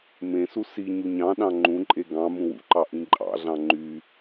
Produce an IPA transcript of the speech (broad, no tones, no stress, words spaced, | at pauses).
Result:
mẽsu si ɲuɲɑ̃ɗɑ̃ ŋ͡ǃũǃʼe ɡɑ̃ mũwṵǃɑ ʔĩǃʼɑ̰ɮɑ̃ ŋ͡ǃy